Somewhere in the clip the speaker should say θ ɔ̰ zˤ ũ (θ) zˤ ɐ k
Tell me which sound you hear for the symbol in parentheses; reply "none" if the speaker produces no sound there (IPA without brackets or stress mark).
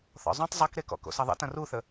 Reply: tˤ